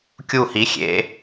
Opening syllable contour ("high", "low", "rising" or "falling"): falling